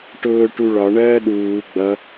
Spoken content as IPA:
ʈʊː ʈuɭɒ ɳɜːɗuː ɡ͡bʌ

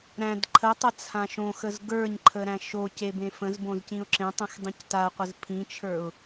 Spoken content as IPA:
ɾæ̃d ǃʰətˤə t͡sʰãʃõxəz ɡə˞ɲǃʰə ɾæ̃ʃoce bẽfə̃zbõz cĩʊ̯ǁẽtˤə̃x dˤĩctaqʷəz pʰĩt͡ʃʰə˞ʊ̯

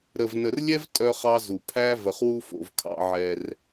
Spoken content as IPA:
ɾə˨vnə˨rlʲɛ˦v tʼœ˦χ ɑ˦zu˨ pʰæ˦və˨χwu˦fo̰˨v kʰɑ̰˦ʕɛ˦r

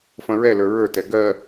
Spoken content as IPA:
fɐ̃ɹɛlə˞ ɹə˞tɛ ɡɜ

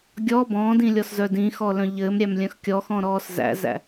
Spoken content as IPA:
ɡʲɔ bɔ̃ːdĩlʲɔszœ dĩxɔlœ̃ ʎɘːmɾʲæmlʲœ̃x kʲɔxɔ̃ɾɔːs zæ̰zæ̰

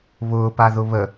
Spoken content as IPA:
βʊːpaðʊ βə

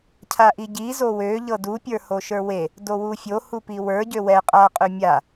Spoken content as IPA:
cʰaʔiɟi zowø ʎɤdu pʲə˞hoʃə˞we | dowufʲo hupiwə˞ ɟøwɛ qʼa qʼømʲa

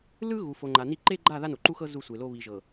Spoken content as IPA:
lɯ˦ɣu˨ fo˨ŋ͡ǃa˨ni˦ ǃe˦ɡ͡ǃa˦˨ ða˦no˨ǃu˦xɤ˦ zu˦˨sʷe˨lo˦ βi˨ʒɤ˨

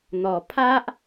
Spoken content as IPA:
n̪ɔ˨˩pʰa˦ʔ

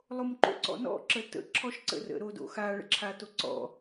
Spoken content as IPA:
lˠomǃo̰ǀɔ̰nɔ̰ ǁətə̰ ǁʰɔʃǀə̰rə̰ ɾodo̰xa ɭə̰ǁʰatoǀɔ̰

